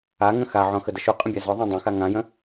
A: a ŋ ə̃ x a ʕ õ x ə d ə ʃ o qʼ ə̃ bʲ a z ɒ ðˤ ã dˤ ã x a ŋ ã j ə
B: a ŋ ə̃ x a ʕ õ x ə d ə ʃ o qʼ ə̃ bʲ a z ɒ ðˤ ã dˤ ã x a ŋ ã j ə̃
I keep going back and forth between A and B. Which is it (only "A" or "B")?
B